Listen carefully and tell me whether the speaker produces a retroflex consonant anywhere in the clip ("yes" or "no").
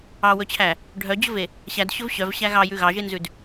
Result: yes